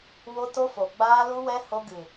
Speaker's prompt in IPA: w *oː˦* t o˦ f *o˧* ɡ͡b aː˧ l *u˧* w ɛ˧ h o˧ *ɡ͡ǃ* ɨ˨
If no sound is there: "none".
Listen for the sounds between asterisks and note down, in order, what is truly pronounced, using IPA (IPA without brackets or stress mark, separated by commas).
o˦, o˨, u˧, ɡ